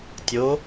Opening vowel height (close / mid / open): mid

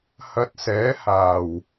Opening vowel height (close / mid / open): open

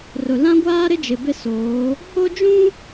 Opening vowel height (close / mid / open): close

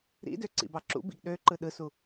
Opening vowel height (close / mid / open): close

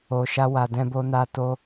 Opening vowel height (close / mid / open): mid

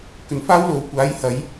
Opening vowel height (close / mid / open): mid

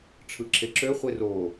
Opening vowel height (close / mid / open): close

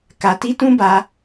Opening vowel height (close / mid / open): open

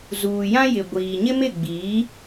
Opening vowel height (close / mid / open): close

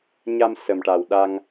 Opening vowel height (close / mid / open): open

